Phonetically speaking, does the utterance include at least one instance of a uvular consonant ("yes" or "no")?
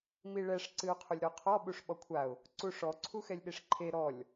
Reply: yes